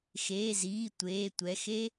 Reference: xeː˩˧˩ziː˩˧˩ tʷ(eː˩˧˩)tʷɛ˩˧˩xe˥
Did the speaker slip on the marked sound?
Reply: no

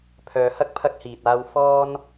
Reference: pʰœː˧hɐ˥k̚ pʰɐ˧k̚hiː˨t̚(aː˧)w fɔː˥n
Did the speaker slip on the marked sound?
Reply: no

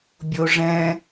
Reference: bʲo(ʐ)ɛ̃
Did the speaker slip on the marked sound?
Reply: no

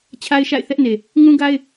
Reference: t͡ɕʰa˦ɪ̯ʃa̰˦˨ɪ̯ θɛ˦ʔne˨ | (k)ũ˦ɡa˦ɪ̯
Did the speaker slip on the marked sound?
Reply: yes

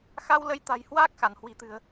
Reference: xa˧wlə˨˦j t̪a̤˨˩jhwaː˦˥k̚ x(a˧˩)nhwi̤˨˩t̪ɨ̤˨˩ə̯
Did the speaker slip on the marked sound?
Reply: no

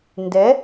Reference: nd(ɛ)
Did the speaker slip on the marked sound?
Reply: no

